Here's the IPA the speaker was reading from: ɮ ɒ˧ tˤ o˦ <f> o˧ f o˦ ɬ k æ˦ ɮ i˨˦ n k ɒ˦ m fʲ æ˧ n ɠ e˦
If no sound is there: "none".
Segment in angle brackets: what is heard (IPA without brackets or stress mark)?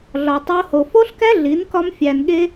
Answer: h